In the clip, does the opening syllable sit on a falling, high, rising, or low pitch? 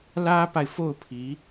high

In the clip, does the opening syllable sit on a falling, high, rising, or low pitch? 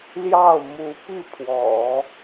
falling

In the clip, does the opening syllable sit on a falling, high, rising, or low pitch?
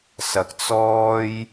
low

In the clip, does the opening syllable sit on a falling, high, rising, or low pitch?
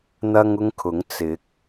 high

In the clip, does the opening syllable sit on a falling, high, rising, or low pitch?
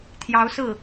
rising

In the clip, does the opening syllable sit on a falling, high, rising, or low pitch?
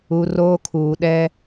low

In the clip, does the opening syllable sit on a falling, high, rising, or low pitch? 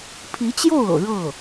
rising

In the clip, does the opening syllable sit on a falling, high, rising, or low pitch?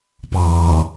low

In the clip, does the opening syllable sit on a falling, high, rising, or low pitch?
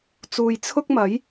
low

